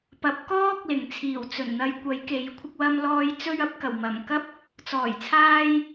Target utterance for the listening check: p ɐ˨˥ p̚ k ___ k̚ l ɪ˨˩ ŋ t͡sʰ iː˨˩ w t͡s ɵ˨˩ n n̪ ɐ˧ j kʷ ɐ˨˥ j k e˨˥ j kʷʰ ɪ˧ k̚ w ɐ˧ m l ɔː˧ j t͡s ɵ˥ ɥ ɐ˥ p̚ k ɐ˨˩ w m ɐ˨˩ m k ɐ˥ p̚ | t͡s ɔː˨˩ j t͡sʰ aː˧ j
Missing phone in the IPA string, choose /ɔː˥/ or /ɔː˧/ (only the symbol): ɔː˥